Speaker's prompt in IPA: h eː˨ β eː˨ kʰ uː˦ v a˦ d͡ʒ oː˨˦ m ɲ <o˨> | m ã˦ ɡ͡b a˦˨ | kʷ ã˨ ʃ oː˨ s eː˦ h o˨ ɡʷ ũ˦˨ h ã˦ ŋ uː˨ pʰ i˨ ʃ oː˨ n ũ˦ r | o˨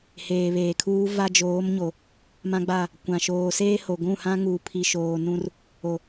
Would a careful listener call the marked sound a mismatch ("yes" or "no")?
no